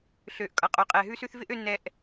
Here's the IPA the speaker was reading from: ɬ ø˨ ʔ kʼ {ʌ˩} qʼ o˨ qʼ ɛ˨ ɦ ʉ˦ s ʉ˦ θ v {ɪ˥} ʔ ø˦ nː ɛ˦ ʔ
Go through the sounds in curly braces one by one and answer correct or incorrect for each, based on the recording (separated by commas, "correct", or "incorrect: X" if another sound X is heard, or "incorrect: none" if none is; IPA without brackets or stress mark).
correct, correct